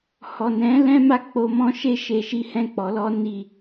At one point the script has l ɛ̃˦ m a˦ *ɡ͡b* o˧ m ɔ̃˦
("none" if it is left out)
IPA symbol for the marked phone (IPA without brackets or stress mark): k͡p